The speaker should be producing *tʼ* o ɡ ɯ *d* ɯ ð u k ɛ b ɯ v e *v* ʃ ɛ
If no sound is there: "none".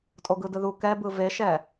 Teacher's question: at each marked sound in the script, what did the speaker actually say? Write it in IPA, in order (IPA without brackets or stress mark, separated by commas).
tʼ, d, none